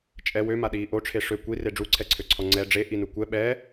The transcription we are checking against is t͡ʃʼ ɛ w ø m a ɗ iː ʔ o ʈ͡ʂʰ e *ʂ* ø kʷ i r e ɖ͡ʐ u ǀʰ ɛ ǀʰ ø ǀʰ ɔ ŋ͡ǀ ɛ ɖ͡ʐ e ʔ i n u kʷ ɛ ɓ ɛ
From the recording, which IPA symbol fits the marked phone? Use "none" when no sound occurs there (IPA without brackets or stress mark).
ʂ